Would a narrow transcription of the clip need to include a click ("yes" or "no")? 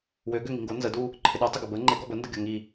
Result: yes